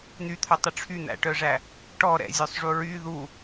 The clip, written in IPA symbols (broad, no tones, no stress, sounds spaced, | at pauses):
n̪ y t̪ʰ œ tˤ y ʈ͡ʂʰ y n̪ æ̰ ʈ œ ʐ æ | ʈ ɔ ɾ ɛ̰ zʲ œ sˤ ʐ u ɹ y ð u